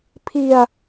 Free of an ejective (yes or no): yes